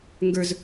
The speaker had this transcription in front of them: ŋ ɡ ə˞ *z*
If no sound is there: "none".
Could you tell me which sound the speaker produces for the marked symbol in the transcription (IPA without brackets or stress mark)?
z